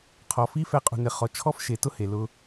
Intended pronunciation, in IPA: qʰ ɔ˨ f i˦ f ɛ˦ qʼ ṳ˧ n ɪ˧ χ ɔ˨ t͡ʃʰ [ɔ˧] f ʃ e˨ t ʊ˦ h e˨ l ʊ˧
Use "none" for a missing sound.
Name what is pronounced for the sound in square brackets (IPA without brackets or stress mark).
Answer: ɔ˦